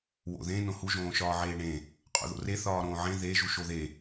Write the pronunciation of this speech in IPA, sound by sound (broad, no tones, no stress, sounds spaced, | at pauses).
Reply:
w o̰ ð ẽ n õ h u ʒ õː ʃ ɒː ʕ eː ɳ ẽ | qʼ o̰ ð o̰ r e θ ɒː ɾ õː ʕ ẽ ð e ʒ u ʃ o ð e